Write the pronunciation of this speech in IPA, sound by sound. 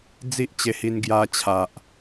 d͡z i˦ ʔ t͡ɕ e˧ h i˧ n ɡ j a˧ t͡ɕʰ a˨ ʔ

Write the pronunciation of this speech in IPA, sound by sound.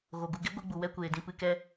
ɣ o˨ ɡ u˧ ɡ e˦ ɡʷ ɨ˧ ɡ͡b u˨ w ɛ˦ kʷ eː˨ d ĩ˧ p ɨ˧ k ɛ˦

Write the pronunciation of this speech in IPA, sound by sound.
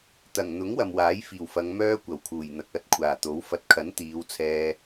t̪ ɐ˨˩ ŋ n̪ ʊ˨˥ ŋ w ɐ˨ m w aː˨˥ j f iː˨˩ w f ɐ˨˧ ŋ m œː˥ kʷ ɐ˨˩ w kʰ uː˨˩ j n̪ ɐ˨ k̚ ɐ˧ t̚ kʷʰ aː˨˩ t̪ o˨˥ w f ɐ˨ t̚ kʰ ɐ˨˥ n t̪ iː˨˧ w t͡sʰ ɛː˧

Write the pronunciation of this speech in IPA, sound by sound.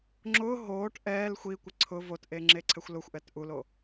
ŋ͡ǁ ʊː ɦ oː ʈ ʔ ɛː l xʷ i kʷ ɪ ǀʰ ʊ v o t ʔ e ŋ͡ǁ e ǀʰ ɛ xʷ l ʊ xʷ ʔ ɛ t ʔ u l o

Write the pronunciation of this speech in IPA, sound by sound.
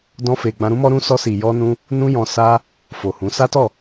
d ɔ̃˧ f e˨ ɡ͡b ã˧ ɾ ũ˦ m ɔ˦ ɾ ũ˧ s ɔ˧ s i˨ j ɔ˧ n ũ˧ | n ũ˦ j ɔ̃˧ s a˦ | f o˨ h ũ˨˦ s a˦ t ɔ˦˨

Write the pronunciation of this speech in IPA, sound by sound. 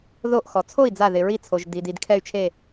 ð o˧˩ ʔ x ɔ˩ t͡sʰ o˥˩ i̯ d͡z a˧˩ ð ɪ˩ ɹ i˧˩ t͡sʰ o˩ ʒ d i˩ d i˧˩ d kʰ ɛ˧˩ y̯ t͡ʃʰ e˧˩

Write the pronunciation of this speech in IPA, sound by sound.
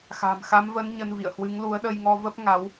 x a̤˨˩ m x a˨˦ m v ə˨˦ n ɲ ə˧ n v ḭ˧˨ ə̯ h w ɨ˨˦ ŋ l u˨˦ ə̯ ɗ ə˧ j ŋ ɔ˧ v ə˦˥ p̚ ŋ a˨˦ w

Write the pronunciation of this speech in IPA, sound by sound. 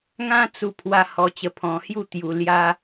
ŋ ã˦ t͡s u˧ pʰ w a˧ h ɔ˧ t͡ɕ ə˧ pʰ ɔ̃˧ h j u˥˧ t̪ j u˧ l j a˦

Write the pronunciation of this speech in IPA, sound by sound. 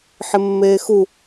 ħ ɪ mː eː x u

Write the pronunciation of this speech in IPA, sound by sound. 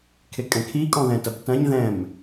kʰ e kʼ ɛ̃ kʰ i kʼ ɔ̃ ð ɛ̃ t ɐ b t ɐ̃ ɲ ð ɛ̃ m

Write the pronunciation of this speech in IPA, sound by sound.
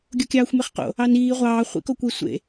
ɡʲ o kʲ ɑː xʷ m e χ q o̰ | ɑ n iː ʁʷ ɑː χʷ ḭ k o kʷ i sʷ ḛ

